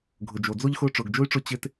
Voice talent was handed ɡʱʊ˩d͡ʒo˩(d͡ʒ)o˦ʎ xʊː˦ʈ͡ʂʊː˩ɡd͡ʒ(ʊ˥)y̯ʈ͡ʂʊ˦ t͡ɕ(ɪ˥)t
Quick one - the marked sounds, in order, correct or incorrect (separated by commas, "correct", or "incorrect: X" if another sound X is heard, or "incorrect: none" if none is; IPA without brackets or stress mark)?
incorrect: d͡z, correct, incorrect: ɪ˦